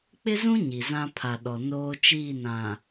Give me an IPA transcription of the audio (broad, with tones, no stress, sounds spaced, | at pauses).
k͡p ɪ˦ z ũ˦ ɲ i˨ z ã˦ pʰ a˨ ɗ ɔ˨ n oː˦ t͡ʃ iː˦˨ n ã˨